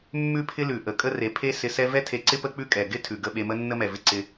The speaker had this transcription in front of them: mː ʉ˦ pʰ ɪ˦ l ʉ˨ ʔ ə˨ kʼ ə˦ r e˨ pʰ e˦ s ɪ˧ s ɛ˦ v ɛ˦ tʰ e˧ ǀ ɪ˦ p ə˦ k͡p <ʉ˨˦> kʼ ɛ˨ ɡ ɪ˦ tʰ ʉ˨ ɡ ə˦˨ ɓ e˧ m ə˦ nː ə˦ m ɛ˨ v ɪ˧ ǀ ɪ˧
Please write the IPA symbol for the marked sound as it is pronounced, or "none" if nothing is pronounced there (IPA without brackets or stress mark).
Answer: ʉ˦